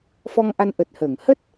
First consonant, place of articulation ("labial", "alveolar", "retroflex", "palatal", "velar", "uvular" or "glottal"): labial